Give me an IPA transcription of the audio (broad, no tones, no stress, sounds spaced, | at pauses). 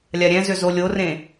lʲ a ɾʲ ɛ̃ z ʏ z o lʲ o r ẽ